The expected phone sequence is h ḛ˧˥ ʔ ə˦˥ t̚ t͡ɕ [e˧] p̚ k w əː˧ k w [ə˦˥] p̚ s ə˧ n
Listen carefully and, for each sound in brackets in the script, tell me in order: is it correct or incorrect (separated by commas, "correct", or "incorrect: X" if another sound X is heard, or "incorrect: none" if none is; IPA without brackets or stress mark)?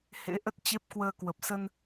incorrect: e˦˥, incorrect: ə˨˩